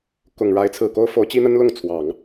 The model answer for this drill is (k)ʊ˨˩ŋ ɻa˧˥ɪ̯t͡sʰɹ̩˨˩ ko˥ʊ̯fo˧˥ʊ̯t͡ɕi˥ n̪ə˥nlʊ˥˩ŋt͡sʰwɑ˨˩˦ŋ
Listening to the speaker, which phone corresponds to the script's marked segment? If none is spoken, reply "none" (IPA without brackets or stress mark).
k